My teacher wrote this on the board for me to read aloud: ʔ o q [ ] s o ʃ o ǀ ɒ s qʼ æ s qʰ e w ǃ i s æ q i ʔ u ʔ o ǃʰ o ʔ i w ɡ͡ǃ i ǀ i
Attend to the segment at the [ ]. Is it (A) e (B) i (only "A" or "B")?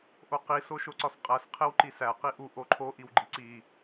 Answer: B